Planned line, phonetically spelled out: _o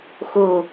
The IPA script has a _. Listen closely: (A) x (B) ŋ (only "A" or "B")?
A